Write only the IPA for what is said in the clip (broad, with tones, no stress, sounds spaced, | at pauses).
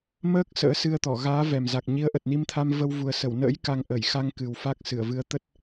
m əː˦˥ k̚ s ə̰ː˧˥ s ɨ˧ ə̯ t̪ ɔ˧˩ ɣ aː˨˦ v ɛ˨˩ m z a˨˩ k̚ ɲ i˨˦ ə̯ ʔ ə˨˩ t̚ n i˧ m t̪ʰ a˧ m v ə˧ w v u˨˩ ə̯ s ə˧˩ w n ə̰ː˧˥ j k a˧ ŋ ʔ əː˧˩ j x a˧ ŋ k ɨ˨˩ w f a˦˥ k̚ s ɨ˧˩ ə̯ v ɨ˨˦ ə̯ t̪ ə˦˥ t̚